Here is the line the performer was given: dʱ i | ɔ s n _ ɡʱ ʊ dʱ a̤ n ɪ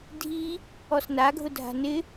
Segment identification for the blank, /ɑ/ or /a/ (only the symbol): a